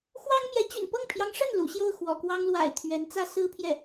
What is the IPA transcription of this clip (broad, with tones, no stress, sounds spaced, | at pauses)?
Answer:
x w ɑ˥ ŋ m j ɛ˧˥ t͡ɕ y̰˨˩ n p ɤ˥˩ ŋ pʰ j ɑ˧˥ ŋ ʂ ə˥˩ n l ṵ˨˩ ɕ j o˥˩ ʊ̯ x w ɔ̰˨˩ k w ɑ˥ ŋ l w a̰˨˩ ɪ̯ t̪ʰ ɥ ɛ˧˥ n t͡s ä˥ s ɹ̩˥ pʰ j ɛ˥˩